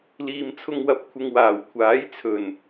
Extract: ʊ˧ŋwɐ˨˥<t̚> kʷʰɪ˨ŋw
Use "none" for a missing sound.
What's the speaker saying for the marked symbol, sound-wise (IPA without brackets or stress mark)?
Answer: p̚